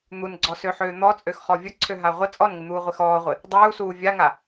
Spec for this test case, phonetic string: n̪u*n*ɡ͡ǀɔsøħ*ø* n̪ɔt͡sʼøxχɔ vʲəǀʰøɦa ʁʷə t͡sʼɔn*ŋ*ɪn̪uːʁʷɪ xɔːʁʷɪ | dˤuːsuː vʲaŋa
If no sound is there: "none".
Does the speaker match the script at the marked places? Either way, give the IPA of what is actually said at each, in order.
n, øː, ŋ

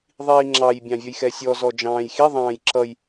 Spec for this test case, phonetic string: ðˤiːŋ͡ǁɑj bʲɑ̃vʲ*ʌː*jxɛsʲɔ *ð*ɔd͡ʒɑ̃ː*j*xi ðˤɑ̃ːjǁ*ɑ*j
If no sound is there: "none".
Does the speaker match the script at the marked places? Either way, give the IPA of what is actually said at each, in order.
ʌ, z, j, ʌ

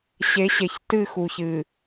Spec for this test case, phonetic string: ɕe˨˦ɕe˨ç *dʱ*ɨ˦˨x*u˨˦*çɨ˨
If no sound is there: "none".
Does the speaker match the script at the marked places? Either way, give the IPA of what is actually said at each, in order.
t, u˨

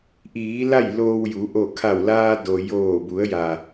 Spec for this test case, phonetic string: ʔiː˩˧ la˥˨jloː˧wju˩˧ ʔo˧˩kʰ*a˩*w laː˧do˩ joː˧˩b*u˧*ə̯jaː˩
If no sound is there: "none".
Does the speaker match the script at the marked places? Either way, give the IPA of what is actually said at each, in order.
a˧˩, u˩˧

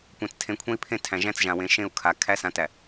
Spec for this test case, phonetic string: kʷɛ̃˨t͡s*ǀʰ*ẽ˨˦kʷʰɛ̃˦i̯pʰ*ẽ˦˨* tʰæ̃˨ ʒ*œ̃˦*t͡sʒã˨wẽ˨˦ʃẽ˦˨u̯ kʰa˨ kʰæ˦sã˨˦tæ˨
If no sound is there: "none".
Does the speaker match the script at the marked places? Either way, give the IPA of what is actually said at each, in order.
tʰ, ẽ˦˨, æ̃˦

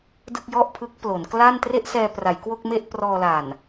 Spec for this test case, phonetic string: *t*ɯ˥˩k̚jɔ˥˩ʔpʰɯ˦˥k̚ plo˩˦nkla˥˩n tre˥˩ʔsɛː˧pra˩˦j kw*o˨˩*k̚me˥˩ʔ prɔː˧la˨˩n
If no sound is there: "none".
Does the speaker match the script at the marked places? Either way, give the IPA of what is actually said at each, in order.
d, o˥˩

